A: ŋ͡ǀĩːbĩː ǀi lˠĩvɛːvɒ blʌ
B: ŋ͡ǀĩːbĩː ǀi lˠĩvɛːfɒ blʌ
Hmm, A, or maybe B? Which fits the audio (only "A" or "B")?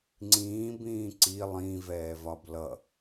A